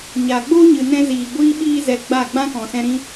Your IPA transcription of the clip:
ɲ aː˨ ɡ͡b oː˦ ɲ ɨ˨ n ɛ̃˧ z iː˨ ɡʷ iː˦ ɓ iː˦ z ɛ˧ ɡ͡b a˦˨ ɡ͡b ã˦ k ɔ̃˨ s ɛ̃˧ ɾ ĩ˦

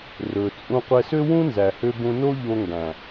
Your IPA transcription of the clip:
r ɵ˨ t͡sʼ ũ˧ qʷ ɛ˧ s ø˦ w ũ˦ n z æ˨ h ø˧ b ũ˧ n o˦ ʎ o˧ ŋ ɡ æ̃˨

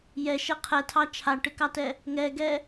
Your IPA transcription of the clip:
j ɛ ʃ ɛ qʰ ɛ tʰ ɑ t͡ʃʰ a ʈ ɪ k ɑ t ɛ | ŋ ɛ ɡ ɛ

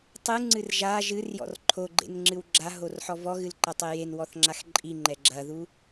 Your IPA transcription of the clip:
tˤ ɨ ŋ͡ǀ ɨ r ʒ a ʒ ɨ r j ɔ̰ r ǃʰ o ɡ͡ǃ ḛ n ŋ͡ǁ ɨ w ɡ͡ǁ a ɦ o r ħ ɔ v ɔ ɣ ɨ l ǃ ɐ tˤ e j e n w ɔ θ ŋ͡ǁ a x ǃʼ i ŋ͡ǃ ɛ ɡ͡ǁ ɐ ð u

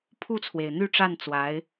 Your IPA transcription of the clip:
pʰ u˥˩ t͡sʰ w e˩ ɪ̯ n̪ y˥˧ ʈ͡ʂ a˥˩ n t͡s w a˧˥ ɪ̯

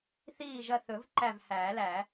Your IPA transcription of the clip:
θ iː˦˨ ʒ ɐ˦˨ θ ɵ˨˩˦ v ǃ æ˦˨ v h æː˨˩˦ l æː˨˩˦

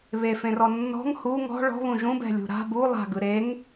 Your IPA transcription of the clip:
β e f ẽ r ɔ nː ɔ̤ ŋ h u ŋ ɔ̤ ɭ ɔ̤ β ũ ʒ ũ b ɛ̤ lʲ ṳ ɾ a̤ b u lˠ a̤ ɡ ɯ ɾ e ŋ

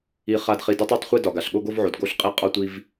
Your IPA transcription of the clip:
i˧ χ a˧ d χ i˧ d ɒ˦ tˤ a˦ tˤ χʷ i˧ d ɒ˨ ɡ a˨ ɬ ɠ o˧ ɡ o˧ v ʕ o˨ d ɡ o˧ ɬ qʼ i˧ qʼ ɒ˧ tʷ i˧ v

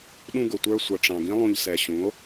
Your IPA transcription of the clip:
ɗ ũ˧ ɡ ʊ˨ tʷ ə˞˧ sʷ ʌ˨ ʈ͡ʂ ɑ̃˨ ɡ ĩ˦ lˠ ũ˧ ʎ s ɛ˨ ɕ ũ˨˦ o̯

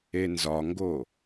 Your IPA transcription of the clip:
e n z ɒ ŋ ɡ o

